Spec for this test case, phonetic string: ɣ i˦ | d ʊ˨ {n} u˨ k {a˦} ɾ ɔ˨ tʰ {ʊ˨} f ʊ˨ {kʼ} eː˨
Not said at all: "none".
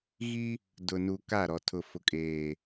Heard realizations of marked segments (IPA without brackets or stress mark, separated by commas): n, a˦˨, ʊ˨, kʼ